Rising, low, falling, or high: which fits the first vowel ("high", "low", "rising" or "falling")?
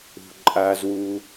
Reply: low